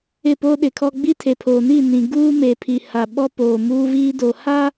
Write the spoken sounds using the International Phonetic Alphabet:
ɪ˦˨po˦ɗɪ˨kʰɔ˦ ɡ͡bi˦tʰe˨pʰoː˨ ni˦˨nĩ˨ ɡuː˦me˨ pʰi˨ ha˨ɓɔ˦ poː˨muː˦viː˦ do˨ha˦

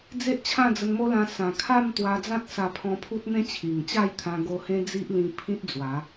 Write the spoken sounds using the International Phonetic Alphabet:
d͡ze˦ʔt͡ɕʰã˥˧d͡zə˧nmo˦ lã˧ sã˨˩kʰa˥˧m t̪wa˧d͡zã˦t̚sa˧pʰɔ̃˧ pʰu˦t̚n̪ẽ˦ t͡ɕʰi˨˩ŋt͡ɕa˥˧jt̪ʰã˧ ɡo˧hẽ˦d͡zi˦ʔlĩ˧ pʰĩ˦t̚d͡zwa˨˦

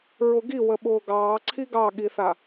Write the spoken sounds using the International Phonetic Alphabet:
ɹʊɡi wəɓʊːɡɑː ǀʰiɡɑɠiθa

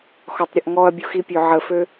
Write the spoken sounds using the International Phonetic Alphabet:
xɔtˤɾʲəʔŋɔɐ̯bʲux ipʲøʕəfø

